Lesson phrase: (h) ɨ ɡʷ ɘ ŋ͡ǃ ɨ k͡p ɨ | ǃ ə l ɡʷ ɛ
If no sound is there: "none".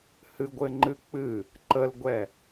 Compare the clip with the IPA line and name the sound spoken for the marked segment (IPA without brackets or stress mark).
h